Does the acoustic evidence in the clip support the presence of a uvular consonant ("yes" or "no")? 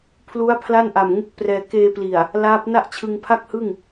no